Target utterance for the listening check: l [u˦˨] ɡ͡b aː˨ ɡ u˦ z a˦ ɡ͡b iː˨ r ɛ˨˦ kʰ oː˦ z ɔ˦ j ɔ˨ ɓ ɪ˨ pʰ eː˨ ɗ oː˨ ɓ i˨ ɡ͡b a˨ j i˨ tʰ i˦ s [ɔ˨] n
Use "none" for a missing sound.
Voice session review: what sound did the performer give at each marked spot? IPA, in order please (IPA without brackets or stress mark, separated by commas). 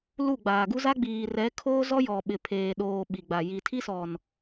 u˦˨, ɔ˨